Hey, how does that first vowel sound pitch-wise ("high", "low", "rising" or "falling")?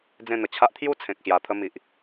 falling